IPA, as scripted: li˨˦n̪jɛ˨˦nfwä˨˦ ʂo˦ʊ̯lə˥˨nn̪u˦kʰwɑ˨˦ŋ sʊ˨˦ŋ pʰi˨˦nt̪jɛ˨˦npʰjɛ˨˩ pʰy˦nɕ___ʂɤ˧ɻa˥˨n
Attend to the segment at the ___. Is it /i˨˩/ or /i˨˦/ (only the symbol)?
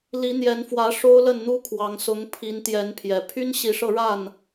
i˨˦